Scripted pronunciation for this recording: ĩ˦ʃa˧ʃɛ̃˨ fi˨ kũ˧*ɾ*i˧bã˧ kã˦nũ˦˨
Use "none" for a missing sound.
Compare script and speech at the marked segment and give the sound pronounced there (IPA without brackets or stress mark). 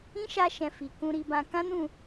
ɾ